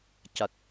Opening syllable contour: low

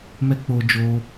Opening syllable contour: high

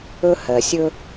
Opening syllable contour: high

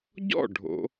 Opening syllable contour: falling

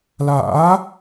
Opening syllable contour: rising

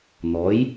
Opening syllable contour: rising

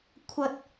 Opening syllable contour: high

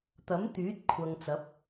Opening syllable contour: rising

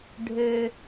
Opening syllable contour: low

